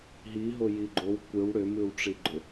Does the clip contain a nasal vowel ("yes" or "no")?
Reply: no